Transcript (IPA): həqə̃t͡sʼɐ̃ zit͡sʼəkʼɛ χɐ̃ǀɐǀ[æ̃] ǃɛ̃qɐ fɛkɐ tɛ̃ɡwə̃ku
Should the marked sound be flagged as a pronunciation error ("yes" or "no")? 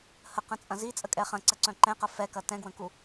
yes